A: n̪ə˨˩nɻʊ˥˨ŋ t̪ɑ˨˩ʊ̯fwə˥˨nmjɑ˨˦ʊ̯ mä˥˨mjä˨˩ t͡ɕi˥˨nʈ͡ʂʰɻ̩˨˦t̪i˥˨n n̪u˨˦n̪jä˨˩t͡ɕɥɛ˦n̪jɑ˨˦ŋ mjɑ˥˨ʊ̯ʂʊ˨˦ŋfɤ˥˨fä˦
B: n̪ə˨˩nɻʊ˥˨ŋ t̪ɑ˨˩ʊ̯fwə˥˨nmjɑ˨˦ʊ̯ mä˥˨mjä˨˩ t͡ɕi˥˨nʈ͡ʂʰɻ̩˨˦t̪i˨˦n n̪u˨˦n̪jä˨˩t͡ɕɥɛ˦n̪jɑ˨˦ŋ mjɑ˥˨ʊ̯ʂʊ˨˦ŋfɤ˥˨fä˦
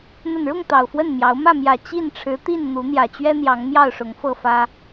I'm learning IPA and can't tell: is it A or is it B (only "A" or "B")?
A